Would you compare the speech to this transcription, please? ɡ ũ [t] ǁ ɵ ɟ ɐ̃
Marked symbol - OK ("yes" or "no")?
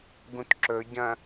yes